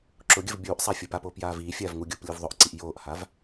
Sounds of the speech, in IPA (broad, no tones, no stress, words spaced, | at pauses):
ǁʊɡʲəv bʲuːʔsˤa fʲʊpapoːp jaːviːfʲaːv ŋuɡʲʊːp lʲuvðˤʊʔǀiʔ joːʔhav